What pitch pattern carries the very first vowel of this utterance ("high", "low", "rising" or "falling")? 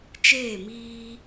falling